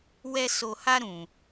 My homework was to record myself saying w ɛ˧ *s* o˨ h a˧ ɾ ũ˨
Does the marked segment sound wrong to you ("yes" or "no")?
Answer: no